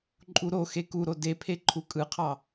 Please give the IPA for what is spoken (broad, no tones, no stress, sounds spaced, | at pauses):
ǃʼ u ɾ o x e k u ɾ o d e pʰ e ǃʰ u kʼ ɯ qʰ ɑ